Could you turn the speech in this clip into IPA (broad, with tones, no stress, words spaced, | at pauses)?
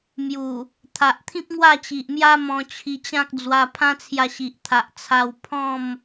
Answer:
mju˨˩ | t̪ʰa˨ʔt̪ʰĩ˦p̚ ŋwa˥˧t͡ɕi˨ʔmja˦ mɔ̃˧t͡ɕʰi˧t͡ɕã˦k̚ d͡zwa˧ pʰã˦t͡sʰja˧ɕi˨ʔ t̪ʰa˨ʔt͡sʰa˧w pʰɔ̃˥˧m